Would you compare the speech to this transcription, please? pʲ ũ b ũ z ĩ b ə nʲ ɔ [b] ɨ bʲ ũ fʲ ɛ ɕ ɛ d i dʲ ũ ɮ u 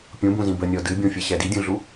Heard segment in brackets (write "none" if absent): d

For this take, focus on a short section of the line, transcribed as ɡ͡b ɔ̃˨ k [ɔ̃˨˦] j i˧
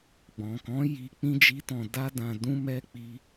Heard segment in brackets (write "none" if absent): ɔ̃˨˦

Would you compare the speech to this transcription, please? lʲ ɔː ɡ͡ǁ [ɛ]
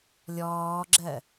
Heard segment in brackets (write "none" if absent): ɜ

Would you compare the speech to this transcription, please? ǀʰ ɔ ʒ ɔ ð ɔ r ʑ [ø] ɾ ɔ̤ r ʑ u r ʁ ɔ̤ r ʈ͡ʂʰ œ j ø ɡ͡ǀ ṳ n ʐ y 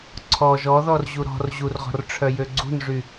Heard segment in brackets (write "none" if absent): u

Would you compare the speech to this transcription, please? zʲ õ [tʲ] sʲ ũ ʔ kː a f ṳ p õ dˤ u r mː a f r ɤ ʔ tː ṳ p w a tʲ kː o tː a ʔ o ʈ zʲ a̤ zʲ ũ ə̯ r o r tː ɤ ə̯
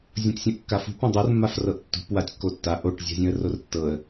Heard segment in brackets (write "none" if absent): tʲ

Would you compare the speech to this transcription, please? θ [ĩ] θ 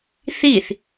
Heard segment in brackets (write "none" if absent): i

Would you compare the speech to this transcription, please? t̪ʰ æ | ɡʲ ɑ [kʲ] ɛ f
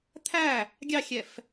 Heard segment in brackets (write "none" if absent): xʲ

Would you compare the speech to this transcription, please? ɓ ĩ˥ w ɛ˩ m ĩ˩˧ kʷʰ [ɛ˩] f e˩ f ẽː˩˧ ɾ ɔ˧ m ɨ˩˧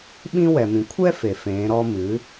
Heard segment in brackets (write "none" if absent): ɛ˥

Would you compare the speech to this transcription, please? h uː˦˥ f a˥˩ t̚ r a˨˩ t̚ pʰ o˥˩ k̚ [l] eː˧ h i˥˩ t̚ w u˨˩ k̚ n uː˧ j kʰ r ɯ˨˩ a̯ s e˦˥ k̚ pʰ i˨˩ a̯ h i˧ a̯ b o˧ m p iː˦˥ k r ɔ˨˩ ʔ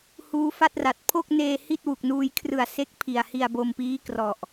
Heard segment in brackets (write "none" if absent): n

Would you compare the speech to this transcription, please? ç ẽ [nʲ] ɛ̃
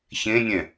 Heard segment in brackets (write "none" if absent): nʲ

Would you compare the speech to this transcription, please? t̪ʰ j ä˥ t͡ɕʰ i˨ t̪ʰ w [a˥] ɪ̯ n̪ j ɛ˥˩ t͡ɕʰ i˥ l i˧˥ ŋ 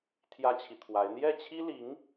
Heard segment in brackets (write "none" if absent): a˧˥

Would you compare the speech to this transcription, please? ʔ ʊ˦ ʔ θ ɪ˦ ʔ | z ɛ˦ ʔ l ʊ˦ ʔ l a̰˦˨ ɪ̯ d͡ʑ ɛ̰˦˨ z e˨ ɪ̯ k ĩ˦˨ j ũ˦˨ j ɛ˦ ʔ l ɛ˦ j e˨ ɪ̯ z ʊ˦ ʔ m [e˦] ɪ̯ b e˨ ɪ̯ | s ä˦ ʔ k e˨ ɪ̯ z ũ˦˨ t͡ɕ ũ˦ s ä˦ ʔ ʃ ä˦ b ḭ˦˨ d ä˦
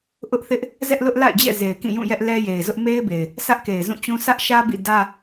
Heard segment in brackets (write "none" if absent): e˦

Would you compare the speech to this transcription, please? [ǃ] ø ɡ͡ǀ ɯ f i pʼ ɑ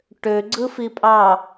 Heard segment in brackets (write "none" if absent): ʈ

